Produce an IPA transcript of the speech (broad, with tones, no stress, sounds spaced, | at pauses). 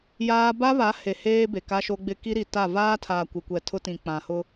j aː˦ b a˦ β a˨˦ h e˨ h eː˦ b e˨ k a˦ ʃ o˦ ɡ͡b ɪ˦ k i˦ ɾ i˨ t a˦˨ v aː˦ tʰ aː˨ kʷ ɪ˨ kʷ ɛ˨ tʰ ʊ˦ t ĩ˨ k͡p ã˨ h ʊ˦